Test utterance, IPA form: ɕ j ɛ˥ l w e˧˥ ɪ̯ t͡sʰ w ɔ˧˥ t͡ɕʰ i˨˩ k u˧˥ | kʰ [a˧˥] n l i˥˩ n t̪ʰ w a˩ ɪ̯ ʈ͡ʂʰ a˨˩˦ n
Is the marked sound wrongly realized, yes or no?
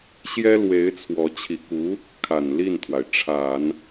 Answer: yes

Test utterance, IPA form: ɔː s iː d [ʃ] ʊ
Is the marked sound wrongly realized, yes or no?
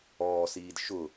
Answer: no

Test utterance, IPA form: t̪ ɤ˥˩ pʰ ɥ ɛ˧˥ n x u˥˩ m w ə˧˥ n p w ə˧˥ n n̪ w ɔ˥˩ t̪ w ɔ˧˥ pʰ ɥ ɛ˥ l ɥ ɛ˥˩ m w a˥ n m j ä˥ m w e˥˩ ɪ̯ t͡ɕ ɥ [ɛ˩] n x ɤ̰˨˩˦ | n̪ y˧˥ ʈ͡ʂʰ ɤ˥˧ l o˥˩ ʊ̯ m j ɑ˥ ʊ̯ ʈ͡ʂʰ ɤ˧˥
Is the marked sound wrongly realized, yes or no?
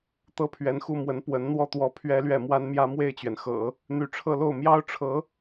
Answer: no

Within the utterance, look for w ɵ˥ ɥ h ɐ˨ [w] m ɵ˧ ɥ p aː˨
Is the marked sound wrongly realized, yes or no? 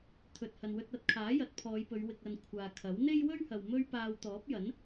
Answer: no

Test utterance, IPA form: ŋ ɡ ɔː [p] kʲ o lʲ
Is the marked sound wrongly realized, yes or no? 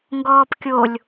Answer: no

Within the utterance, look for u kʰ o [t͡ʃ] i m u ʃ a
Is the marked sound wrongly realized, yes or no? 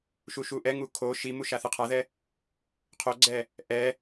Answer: yes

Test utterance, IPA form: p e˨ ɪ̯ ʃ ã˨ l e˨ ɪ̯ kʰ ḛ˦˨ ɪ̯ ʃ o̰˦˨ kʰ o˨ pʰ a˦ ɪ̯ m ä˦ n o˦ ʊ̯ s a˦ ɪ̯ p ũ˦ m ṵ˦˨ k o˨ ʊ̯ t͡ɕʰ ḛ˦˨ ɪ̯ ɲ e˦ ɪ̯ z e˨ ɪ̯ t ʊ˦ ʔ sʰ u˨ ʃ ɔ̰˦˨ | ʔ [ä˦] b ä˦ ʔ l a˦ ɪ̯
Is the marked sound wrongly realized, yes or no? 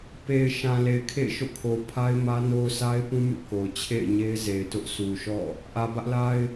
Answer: yes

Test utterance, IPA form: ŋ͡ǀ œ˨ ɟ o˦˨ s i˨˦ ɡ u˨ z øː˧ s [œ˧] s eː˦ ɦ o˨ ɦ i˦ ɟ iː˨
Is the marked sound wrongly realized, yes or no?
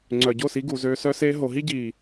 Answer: yes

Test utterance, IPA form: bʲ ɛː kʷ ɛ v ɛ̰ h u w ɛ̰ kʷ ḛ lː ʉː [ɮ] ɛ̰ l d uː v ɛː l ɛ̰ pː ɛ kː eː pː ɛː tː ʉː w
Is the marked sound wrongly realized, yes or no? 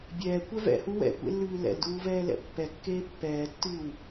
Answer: yes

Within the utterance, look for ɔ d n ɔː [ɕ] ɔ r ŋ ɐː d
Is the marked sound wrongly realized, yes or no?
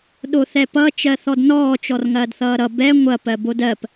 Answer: yes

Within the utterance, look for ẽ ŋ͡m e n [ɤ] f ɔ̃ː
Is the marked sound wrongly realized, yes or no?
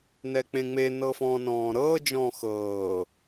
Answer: no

